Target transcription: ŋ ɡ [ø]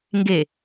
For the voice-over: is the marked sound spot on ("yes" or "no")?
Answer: no